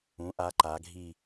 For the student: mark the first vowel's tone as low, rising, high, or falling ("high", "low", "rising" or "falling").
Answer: rising